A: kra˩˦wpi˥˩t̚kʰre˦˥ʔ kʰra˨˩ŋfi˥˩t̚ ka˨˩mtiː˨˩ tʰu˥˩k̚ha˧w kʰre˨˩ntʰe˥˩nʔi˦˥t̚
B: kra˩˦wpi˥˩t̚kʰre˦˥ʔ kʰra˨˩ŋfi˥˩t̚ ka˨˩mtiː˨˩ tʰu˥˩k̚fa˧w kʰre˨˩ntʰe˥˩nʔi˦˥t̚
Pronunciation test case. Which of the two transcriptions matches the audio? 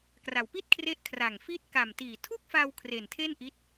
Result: B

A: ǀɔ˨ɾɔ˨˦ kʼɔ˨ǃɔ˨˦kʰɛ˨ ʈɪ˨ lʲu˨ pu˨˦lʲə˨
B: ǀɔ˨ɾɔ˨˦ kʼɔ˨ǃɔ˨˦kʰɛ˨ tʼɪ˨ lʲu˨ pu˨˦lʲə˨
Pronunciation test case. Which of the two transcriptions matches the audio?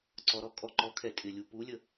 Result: B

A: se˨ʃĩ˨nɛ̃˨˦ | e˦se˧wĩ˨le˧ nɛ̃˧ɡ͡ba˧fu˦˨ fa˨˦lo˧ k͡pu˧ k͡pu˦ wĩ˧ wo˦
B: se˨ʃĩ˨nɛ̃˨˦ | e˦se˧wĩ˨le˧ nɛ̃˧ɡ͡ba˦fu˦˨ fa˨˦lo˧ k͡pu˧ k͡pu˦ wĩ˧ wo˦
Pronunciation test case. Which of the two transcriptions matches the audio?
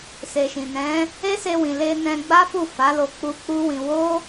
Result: B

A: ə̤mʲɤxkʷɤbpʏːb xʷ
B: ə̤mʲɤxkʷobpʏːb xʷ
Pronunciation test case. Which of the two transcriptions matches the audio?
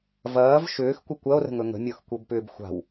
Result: A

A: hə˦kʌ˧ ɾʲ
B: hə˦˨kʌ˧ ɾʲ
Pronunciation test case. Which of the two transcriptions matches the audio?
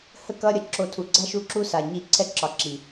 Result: B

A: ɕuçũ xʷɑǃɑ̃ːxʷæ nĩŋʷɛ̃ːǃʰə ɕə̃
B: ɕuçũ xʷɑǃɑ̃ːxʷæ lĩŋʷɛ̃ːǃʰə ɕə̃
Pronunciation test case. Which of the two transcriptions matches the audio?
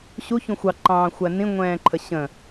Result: A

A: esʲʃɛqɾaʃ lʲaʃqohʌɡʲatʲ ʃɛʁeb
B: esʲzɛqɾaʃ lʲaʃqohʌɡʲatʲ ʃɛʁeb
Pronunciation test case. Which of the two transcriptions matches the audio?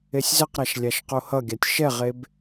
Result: B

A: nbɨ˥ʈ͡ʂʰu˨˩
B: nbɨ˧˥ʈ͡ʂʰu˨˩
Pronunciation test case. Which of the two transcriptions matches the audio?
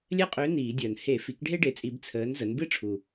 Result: A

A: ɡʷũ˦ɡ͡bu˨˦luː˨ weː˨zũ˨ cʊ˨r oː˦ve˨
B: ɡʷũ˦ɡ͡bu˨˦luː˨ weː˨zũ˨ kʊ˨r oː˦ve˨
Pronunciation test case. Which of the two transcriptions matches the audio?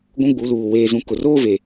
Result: B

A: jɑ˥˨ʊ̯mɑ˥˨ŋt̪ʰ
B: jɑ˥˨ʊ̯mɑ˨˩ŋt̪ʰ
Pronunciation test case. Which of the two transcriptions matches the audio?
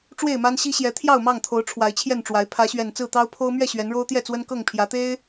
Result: A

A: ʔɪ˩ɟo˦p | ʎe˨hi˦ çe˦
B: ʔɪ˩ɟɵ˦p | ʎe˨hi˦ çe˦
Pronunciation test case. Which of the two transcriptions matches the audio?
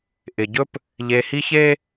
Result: B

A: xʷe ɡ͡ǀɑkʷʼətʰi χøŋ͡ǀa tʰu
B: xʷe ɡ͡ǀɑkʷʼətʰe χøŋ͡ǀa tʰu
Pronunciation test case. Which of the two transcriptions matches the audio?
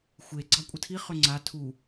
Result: A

